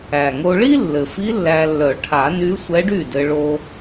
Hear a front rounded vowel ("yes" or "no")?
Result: yes